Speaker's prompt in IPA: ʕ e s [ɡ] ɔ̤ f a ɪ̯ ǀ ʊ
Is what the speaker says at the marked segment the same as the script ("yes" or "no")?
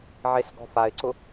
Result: yes